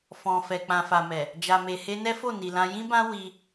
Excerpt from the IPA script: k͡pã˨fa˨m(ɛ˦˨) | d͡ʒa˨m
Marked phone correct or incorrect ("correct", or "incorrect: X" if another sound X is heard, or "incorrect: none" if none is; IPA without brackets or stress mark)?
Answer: incorrect: ɛ˨